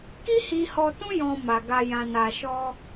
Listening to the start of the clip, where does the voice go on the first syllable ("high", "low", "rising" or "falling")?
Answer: high